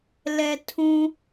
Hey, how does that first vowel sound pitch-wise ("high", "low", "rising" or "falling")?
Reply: low